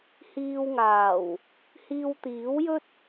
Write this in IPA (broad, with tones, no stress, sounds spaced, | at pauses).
h iː˧ w ŋ aː˨˩ w | h iː˧ w t̪ iː˨˥ w j ɵ˥ t̚